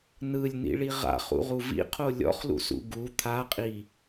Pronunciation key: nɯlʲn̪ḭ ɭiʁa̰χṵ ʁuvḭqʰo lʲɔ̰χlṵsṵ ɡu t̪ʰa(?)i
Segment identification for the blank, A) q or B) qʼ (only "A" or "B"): B